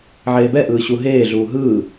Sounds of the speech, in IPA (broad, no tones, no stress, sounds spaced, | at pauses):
ʕ eː b ɛ ʔ ɯː ɕ u ɦ eː ɮ uː ɦ ɯː